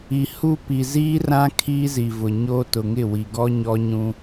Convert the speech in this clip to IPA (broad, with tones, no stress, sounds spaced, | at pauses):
i˨ h u˦ p i˨ z iː˦ r ã˦ kʰ iː˦ z i˨ v ʊ˨ ɲ o˦ t ʊ˨ ŋ ɪ˦˨ w i˨ ɡ ɔ˦ ɲ ɔ˦ ɲ ũ˦